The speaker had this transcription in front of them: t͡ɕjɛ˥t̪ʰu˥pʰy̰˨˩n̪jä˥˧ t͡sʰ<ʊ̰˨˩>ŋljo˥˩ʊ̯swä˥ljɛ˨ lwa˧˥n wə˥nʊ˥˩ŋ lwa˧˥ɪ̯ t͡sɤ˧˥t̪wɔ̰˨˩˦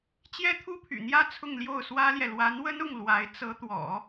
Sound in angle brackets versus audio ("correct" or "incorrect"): incorrect